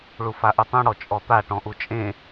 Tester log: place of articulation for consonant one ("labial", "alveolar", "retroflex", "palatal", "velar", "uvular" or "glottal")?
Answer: retroflex